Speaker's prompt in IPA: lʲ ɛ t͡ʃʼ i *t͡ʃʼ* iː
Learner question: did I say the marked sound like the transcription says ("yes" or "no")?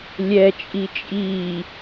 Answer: yes